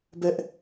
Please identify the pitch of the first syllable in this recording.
high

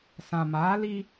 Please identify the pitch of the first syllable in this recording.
low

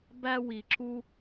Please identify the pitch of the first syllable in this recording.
high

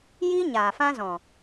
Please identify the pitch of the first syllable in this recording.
high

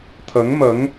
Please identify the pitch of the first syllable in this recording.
rising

